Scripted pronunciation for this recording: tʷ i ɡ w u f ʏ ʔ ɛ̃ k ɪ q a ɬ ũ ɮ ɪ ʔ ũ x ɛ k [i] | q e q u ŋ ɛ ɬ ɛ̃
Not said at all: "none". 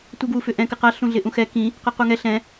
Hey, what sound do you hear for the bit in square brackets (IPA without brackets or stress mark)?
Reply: ĩ